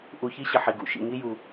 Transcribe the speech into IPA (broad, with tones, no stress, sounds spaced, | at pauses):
ʔ u˨ ç i˦ ɕ ɘ˩ ħ i˩ ɡ ṵ˩ ʃ ḭ˨ ŋ i˦ j u˩